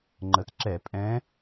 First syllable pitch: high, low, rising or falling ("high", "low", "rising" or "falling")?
rising